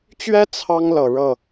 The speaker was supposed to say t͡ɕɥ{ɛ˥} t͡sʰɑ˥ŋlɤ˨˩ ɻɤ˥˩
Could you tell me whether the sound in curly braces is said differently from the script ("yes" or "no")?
no